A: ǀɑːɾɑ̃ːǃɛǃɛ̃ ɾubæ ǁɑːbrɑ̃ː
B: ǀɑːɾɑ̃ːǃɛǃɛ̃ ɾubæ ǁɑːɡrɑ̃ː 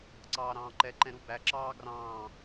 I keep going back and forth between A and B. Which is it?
B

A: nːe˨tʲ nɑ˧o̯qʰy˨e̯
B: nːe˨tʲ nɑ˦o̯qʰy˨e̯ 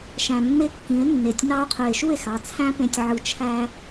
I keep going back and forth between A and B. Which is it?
A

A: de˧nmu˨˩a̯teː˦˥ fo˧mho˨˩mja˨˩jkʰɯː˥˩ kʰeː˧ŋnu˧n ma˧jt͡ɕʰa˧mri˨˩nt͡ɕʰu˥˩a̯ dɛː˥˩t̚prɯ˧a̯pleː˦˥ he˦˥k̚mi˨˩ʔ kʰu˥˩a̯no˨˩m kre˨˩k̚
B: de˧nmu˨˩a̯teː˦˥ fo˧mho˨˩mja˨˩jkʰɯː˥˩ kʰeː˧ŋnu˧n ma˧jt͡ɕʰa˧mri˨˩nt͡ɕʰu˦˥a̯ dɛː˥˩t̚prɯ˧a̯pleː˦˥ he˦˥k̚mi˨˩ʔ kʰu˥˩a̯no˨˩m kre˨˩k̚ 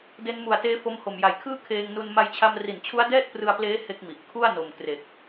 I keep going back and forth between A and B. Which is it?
B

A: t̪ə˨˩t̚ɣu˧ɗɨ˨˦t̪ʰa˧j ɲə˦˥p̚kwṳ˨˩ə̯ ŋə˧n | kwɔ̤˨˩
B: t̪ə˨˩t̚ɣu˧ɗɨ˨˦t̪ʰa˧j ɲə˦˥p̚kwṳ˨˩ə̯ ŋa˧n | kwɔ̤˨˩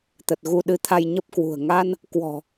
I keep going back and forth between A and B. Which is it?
B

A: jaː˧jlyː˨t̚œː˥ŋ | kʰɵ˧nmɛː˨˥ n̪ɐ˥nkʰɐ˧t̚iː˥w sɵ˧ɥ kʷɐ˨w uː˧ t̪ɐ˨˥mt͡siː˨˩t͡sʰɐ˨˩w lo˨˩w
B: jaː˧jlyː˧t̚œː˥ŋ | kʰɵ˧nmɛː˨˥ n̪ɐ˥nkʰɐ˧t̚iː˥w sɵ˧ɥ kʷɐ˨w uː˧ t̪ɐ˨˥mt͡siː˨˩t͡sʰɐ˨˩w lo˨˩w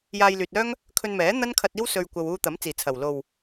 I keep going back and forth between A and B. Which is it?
A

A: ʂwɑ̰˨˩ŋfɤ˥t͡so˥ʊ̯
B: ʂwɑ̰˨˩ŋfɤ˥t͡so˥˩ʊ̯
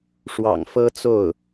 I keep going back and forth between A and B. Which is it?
B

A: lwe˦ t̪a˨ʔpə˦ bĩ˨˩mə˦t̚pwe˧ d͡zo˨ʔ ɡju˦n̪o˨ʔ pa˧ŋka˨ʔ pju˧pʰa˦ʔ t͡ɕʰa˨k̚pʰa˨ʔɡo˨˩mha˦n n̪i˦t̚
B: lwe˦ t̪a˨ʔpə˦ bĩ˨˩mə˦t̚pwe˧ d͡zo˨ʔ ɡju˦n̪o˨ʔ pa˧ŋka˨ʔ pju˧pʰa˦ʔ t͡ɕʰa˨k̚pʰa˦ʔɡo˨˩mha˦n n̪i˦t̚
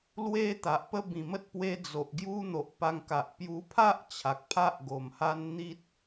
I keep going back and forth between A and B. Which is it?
B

